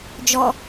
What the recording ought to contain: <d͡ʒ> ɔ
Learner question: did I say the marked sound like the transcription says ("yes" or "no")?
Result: yes